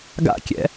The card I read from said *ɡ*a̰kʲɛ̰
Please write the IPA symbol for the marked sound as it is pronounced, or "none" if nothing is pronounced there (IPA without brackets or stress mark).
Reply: ɡ